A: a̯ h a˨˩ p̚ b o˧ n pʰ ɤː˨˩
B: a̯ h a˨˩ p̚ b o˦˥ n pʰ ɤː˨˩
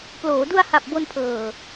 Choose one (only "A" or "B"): A